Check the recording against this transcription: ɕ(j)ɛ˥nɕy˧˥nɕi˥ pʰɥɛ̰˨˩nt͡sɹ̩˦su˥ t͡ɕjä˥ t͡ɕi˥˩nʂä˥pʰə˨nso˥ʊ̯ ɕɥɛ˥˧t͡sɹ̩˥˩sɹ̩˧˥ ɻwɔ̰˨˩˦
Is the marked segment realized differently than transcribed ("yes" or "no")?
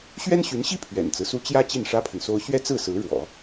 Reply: yes